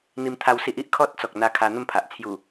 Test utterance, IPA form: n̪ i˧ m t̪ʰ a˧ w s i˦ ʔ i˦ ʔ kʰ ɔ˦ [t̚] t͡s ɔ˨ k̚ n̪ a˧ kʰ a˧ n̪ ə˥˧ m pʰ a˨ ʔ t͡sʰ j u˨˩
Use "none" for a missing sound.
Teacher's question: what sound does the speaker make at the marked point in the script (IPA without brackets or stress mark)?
t̚